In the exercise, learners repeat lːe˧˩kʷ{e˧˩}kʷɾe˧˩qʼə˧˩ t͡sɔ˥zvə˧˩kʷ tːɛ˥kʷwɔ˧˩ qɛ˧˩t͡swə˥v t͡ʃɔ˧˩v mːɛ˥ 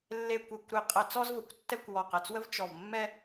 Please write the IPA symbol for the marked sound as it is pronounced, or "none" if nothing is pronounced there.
e˧˩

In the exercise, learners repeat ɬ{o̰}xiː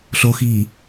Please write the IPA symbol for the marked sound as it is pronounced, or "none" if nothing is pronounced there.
o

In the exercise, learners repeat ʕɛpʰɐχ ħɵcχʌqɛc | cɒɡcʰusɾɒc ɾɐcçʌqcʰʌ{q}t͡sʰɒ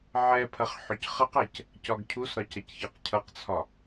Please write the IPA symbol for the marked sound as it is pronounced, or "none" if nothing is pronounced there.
q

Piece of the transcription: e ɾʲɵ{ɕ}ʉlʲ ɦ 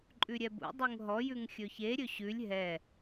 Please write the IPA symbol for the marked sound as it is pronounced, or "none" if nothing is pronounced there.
ɕ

